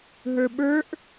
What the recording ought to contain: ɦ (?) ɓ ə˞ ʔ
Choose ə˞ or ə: ə˞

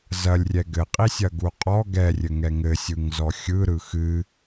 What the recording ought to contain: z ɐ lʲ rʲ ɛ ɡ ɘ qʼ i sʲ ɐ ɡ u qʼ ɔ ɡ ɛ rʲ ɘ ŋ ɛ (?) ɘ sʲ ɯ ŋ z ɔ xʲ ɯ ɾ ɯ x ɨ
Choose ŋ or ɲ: ŋ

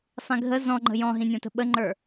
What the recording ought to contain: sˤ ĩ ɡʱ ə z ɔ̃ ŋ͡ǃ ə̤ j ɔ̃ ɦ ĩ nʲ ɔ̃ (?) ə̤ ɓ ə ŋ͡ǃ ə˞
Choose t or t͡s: t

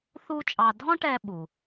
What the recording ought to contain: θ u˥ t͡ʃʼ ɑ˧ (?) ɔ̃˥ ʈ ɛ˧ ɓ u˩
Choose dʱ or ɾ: dʱ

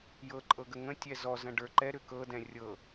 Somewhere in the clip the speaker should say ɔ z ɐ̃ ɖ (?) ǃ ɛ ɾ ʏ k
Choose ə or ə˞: ə˞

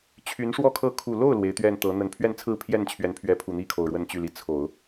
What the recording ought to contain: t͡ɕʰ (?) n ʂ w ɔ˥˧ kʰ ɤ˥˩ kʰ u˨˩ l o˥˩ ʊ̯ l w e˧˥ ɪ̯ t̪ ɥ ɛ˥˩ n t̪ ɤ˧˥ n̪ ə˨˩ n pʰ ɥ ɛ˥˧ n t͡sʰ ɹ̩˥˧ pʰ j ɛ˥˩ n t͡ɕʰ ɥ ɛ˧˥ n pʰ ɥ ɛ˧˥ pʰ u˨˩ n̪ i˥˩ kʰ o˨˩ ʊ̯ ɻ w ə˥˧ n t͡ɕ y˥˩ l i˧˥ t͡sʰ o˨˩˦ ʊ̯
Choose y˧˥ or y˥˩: y˧˥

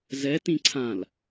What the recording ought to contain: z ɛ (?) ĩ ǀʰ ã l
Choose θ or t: t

